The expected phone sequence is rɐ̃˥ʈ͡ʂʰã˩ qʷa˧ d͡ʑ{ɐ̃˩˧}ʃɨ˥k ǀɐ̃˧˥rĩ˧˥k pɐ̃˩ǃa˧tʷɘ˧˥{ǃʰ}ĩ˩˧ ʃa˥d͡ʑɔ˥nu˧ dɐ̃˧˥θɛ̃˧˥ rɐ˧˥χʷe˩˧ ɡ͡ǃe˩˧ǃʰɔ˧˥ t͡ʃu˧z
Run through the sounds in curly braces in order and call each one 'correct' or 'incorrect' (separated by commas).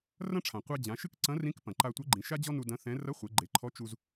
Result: incorrect, incorrect